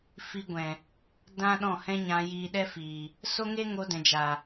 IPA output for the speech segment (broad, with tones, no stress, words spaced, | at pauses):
fi˧ɡʷɛ̃˨ | dã˦ɗɔ̃˦˨hɛ̃˦ ɲã˧jiː˧ɗɛ˦ fiː˨ | so˦ŋe˦ ŋo˧dɛ̃˨ d͡ʒa˨